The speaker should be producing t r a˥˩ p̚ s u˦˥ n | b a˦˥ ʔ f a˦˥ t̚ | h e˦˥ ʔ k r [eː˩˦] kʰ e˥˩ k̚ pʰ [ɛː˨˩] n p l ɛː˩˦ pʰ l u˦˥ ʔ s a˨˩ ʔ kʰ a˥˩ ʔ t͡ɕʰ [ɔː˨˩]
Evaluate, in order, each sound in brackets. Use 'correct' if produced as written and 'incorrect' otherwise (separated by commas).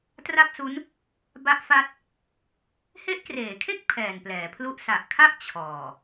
correct, correct, correct